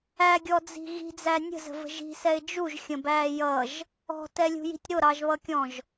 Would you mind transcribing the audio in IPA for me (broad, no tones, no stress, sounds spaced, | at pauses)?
æ ɡʲ ɔ d͡z i̤ ɣ i̤ d͡z æ nʲ ə̤ z ə̤ v ə̤ ʒ i̤ s ɛ ɪ̯ d͡ʒ u ʒ xʲ ə̃ b æː j ʌ ʒ | ɔ̤ t ɛ lʲ ṳ j i̤ tʲ ɾ ʊ ɾ ɑ ʒ β ʌ kʲ ɔ̃ ʒ